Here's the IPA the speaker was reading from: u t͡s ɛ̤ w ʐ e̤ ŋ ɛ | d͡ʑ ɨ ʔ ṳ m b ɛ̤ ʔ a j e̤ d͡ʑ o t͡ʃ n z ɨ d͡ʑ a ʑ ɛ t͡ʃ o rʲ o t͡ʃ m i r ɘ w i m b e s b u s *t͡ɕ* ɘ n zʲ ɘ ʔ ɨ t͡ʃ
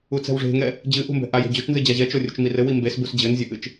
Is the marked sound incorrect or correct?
incorrect: d͡ʑ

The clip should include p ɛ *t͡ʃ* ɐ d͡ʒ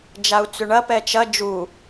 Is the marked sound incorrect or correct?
correct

